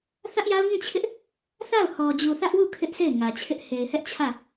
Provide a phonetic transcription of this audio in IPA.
θ ä˦ ʔ j a˦ ʊ̯ ŋ ĩ˦˨ t͡ɕʰ ɪ˦ ʔ | θ a˦˨ ʊ̯ h ɔ˨ d͡ʑ u˨ θ ä˦ ʔ w u˦˨ kʰ ɪ˦ ʔ s e˦˨ ɪ̯ ŋ ä˨ t͡ɕʰ ɪ˦ ʔ h e˨ ɪ̯ h ɛ˦ ʔ t͡ɕʰ ä˦˨

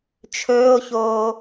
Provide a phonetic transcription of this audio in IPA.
t͡ʃʰ ɵː o̯ ç oː

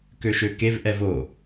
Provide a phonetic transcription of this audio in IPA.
k ø ʃ ø k e v ʔ ɛ v o

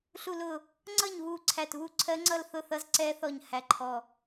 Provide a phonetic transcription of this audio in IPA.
ɬ u˧˩ l ʊ˧˩ | ŋ͡ǀ ʌ˥˨ ɲ β u˧˩ ǀʰ æ˧˩ t β u˥˨ ǀʰ ɜ˦˥ ŋ͡ǀ ʌ˥˨ l θ ʊ˥˨ θ ʌ˦˥ z ǀ ɛ˦˥ θ ɔ˧˩ ɲ h æ˧˩ ǃʰ ɔ˧˩

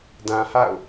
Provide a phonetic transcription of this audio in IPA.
d ã˨ h a̰˦˨ ʊ̯

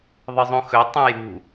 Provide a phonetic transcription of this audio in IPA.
ðˤ ɨ zˤ ũ x ɵ tˤ ũ j ṳ

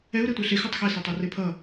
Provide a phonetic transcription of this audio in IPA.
ɛ u̯ ɾ e tʷ æ ɬ e x ʉ tˤ x e s o tˤ ɔ r e pʰ ʌ

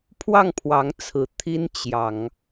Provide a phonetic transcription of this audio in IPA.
pʰ w ɑ˥˩ ŋ pʰ w ɑ˧˥ ŋ t͡sʰ ɹ̩˨˩ t̪ʰ i˥ n t͡ɕ j ɑ˨˩˦ ŋ

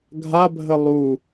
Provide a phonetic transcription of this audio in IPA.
ɡʱ a bʱ ə lˠ u

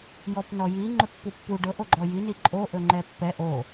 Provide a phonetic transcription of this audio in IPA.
j ɔ p n ɔ j i ŋ͡ǃ ɵ pː u pː u ɖ ɤ ʔ o ɡ͡ǃ ɔ j i n i ǃʼ o ʔ ɵ ŋ͡ǃ ɛ pː ɛ ʔ o

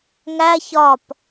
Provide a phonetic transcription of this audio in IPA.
ŋ æ ç ɒ p

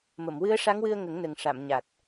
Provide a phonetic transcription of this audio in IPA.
m ə˨˩˨ m w ɨ˧˥ ə̯ ʂ a˧˥ ŋ w ɨ˧ ə̯ ŋ ə˨˩˦ ŋ n ə˨˩ ŋ ʂ a˨˩˨ m ɲ a˨˩ t̚

